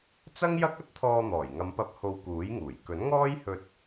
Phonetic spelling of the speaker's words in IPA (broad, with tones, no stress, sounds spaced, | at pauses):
t͡s ɐ˥ ŋ j ɐ˥ k̚ ɐ˥ t̚ t̪ʰ ɔː˧ n̪ ɔː˨˩ j ŋ ɐ˨˧ m p ɐ˧ p̚ h o˧ w k uː˨˥ j ŋ uː˨˩ j k ɵ˨˥ n ŋ ɔː˥ j h ɵ˧ t̚